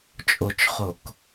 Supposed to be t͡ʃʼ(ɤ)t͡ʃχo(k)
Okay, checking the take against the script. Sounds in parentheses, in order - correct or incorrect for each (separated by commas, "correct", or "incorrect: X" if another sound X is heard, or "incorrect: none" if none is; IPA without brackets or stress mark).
incorrect: o, correct